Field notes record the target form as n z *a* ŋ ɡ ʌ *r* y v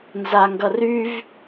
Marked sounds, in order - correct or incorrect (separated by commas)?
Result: correct, correct